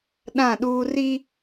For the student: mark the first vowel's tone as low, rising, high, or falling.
falling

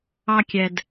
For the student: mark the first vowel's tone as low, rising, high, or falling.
low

